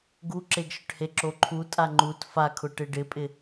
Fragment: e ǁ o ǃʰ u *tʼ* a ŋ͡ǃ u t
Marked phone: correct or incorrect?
correct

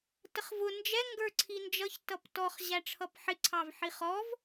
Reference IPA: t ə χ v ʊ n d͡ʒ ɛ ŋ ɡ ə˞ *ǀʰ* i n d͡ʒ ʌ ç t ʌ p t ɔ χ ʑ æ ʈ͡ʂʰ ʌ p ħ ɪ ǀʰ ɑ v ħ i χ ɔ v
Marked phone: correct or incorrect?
correct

